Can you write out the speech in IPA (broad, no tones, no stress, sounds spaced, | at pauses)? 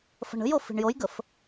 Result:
f ə̤ ɳ ə̤ j o f i̤ ɳ j o j ɡ ə f